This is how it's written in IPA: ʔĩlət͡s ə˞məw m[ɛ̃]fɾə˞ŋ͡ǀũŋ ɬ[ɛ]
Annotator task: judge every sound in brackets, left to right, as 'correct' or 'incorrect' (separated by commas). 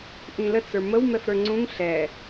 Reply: incorrect, correct